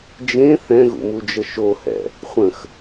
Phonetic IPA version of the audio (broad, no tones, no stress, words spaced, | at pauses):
d͡ʒẽ θɛ̃ɣṵmud͡ʒə ʃohɛ̰ | χʷə̃x